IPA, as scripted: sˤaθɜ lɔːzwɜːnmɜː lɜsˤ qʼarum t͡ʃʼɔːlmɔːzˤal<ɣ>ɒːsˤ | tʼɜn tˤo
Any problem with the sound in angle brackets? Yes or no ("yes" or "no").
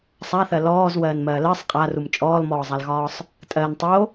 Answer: no